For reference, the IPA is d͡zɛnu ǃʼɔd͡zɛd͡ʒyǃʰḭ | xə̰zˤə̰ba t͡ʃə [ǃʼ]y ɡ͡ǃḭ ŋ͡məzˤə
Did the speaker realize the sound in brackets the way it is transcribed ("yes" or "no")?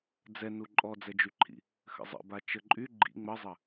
yes